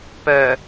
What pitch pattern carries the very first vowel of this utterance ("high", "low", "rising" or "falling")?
low